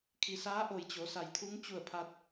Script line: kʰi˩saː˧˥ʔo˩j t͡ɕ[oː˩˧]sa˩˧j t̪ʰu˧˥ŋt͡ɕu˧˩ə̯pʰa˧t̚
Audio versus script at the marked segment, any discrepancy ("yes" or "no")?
yes